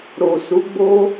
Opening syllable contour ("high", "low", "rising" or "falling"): low